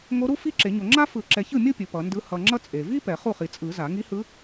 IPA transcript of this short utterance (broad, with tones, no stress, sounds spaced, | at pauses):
ŋ o˧˥ ɾ u˥ f i˥˧ ǁ e˨˩˦ ɲ o˨ ŋ͡ǁ a˥ f ɯ˨˩˦ ǁ ɛ˨ ç ɯ˥˩ mʲ o˥˧ pʲ ɯ˨ p ʌ˨˩˦ n d ɯ˧˥ h ʌ˨ ŋ͡ǁ ʌ˥ t͡sʼ e˨ v i˥ p ɛ˨˩˦ χ u˥˩ χ i˨ t͡sʼ ɯ˨˩˦ z a˨˩˦ ŋ i˧˥ h ɯ˧˥